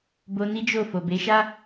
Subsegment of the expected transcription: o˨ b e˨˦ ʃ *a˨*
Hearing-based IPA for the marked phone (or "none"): a˦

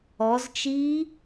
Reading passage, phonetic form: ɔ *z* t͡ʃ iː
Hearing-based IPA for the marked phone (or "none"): z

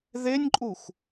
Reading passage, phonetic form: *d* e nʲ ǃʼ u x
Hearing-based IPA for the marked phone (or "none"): ð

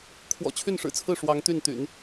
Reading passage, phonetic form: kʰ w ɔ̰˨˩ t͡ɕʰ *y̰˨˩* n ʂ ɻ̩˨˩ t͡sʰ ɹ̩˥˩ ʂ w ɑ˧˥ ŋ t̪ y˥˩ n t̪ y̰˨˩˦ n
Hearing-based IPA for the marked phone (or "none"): y˥˩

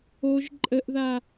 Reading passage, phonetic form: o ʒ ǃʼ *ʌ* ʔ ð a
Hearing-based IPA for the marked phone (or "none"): ə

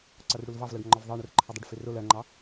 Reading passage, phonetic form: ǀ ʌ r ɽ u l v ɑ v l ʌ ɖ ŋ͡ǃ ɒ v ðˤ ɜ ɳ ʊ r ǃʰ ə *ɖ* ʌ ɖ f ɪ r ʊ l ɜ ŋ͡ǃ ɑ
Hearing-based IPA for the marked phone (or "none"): dˤ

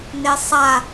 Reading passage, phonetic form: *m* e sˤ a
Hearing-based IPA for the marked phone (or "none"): n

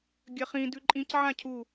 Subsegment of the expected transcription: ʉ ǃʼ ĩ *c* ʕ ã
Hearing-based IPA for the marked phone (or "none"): c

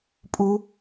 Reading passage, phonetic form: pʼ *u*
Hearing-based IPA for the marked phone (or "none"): u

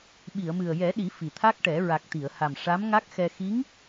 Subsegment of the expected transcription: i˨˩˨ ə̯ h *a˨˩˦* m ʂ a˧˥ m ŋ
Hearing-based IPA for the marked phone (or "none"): a˨˩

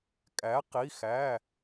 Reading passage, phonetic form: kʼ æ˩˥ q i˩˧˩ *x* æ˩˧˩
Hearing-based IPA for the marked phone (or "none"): x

